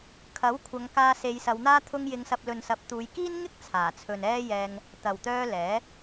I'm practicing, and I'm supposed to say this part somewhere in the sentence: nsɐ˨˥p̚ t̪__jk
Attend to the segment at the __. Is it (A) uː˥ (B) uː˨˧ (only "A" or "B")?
B